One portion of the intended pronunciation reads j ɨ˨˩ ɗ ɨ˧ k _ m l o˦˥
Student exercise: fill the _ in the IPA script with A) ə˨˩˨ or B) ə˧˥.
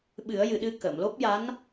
A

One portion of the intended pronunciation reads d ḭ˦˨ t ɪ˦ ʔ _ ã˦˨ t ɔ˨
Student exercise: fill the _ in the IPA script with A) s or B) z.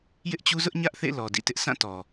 A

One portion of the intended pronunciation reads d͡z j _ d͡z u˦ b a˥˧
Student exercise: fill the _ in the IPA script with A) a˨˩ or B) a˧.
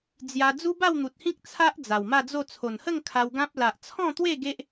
B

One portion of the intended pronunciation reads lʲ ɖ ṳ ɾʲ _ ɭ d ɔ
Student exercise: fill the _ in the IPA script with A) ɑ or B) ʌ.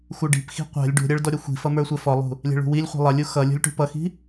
B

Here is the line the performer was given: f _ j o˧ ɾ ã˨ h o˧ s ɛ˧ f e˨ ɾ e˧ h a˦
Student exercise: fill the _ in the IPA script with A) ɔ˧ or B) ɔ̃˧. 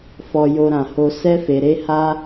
A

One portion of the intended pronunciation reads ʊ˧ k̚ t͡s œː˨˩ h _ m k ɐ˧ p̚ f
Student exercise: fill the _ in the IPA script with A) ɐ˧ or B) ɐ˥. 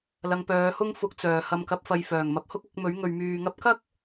A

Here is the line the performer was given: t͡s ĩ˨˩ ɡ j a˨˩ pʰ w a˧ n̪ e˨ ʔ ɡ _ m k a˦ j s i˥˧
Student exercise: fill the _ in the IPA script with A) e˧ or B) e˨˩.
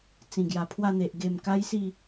B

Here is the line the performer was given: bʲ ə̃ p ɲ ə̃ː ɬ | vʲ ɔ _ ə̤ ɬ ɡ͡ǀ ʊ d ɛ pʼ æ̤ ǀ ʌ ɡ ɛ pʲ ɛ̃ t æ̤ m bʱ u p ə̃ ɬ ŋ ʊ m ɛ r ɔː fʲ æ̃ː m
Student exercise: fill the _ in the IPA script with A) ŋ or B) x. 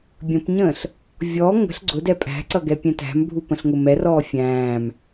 A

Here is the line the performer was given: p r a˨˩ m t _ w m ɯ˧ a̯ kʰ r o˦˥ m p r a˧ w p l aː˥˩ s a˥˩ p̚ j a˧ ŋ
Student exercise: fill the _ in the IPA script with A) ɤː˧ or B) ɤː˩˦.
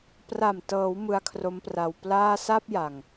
B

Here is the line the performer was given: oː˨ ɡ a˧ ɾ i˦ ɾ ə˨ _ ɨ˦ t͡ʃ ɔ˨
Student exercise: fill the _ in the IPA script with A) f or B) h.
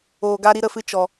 A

